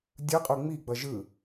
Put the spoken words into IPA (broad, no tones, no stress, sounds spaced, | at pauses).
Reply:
dʲ ɯ qʼ u ŋ͡m i ɡ͡b ʌ ʒ ɯ